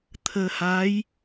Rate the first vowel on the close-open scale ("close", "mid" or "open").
mid